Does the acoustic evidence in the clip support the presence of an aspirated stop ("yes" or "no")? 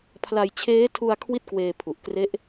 yes